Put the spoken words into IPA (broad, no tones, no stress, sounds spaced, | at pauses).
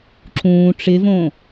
ǁ ũː ʈ͡ʂ ɪ v õ